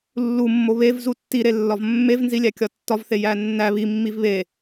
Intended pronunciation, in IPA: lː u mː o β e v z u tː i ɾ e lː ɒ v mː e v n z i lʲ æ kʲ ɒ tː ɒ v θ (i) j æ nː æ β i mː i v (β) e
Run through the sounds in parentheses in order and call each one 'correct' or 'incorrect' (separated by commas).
incorrect, correct